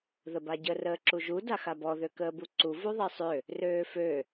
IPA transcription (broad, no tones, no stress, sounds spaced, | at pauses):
ð ə b a ɟ ə r əː ǁ u ʒ u d a x a b ɔ ð ø k əː b u ǀ u v u ðˤ e sˤ ø | r øː f ø